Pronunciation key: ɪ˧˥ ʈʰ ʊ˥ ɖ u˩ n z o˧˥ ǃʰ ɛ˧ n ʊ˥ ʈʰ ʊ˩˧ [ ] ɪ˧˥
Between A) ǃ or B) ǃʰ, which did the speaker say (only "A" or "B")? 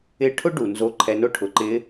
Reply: A